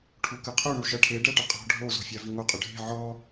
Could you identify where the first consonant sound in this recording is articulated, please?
retroflex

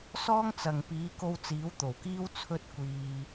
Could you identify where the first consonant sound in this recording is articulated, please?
alveolar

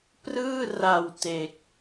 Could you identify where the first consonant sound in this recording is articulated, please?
labial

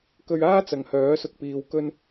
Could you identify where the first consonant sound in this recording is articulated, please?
velar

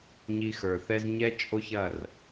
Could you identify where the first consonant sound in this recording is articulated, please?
palatal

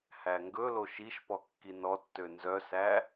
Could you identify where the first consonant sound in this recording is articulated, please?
glottal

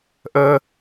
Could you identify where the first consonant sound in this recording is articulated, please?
glottal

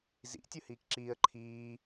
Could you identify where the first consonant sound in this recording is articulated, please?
alveolar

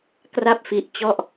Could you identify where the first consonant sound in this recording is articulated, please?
velar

